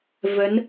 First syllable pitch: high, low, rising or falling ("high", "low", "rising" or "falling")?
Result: rising